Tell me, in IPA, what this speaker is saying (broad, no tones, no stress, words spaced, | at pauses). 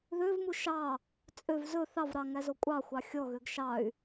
ðøvmu ʃɑ | t͡sʼøv zɵ θɑvɾɑ ŋæzokʷʼɑxʷɑ xʲɔɣøɡ ʃɑy̯